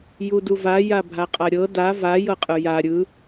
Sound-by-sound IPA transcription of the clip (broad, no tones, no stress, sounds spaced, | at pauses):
j u d u v a j a bʱ a qʼ a ɾʲ ɤ d a v a j ɤ qʼ ɯ j a ɾʲ ɯ